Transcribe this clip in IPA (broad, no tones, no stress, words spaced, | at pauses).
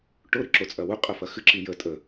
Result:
ʈʊ ɾɨǁot͡sʼɐ wʊqʼɐ fɐxɨǁi jə tʼə